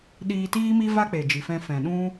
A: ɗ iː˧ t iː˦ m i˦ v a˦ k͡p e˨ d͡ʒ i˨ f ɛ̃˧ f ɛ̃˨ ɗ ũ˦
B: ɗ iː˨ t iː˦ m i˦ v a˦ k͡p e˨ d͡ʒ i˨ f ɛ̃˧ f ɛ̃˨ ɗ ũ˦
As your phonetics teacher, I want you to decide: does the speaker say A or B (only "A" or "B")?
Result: A